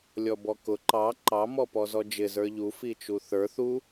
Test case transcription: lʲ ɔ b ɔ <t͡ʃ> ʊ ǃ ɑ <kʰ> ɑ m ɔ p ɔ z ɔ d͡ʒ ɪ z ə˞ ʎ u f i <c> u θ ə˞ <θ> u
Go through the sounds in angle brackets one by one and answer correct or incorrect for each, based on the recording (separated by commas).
incorrect, incorrect, incorrect, correct